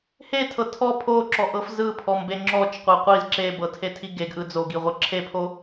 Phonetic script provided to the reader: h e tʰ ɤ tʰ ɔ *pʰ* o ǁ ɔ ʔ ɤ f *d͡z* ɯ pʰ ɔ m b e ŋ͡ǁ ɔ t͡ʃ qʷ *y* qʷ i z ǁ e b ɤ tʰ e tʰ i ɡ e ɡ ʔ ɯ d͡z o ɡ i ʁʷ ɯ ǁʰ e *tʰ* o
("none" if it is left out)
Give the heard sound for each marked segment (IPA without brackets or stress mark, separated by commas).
pʰ, z, e, pʰ